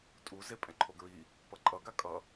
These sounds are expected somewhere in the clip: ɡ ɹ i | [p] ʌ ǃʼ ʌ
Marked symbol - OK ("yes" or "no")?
yes